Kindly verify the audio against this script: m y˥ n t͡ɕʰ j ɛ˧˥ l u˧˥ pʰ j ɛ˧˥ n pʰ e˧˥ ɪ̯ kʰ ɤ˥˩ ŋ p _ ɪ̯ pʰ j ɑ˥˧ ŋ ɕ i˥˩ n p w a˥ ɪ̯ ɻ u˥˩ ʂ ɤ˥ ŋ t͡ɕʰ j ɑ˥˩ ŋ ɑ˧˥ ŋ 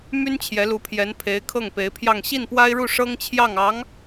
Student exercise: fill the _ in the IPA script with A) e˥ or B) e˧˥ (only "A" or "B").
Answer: B